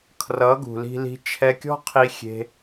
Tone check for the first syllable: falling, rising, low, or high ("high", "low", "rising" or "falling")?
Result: rising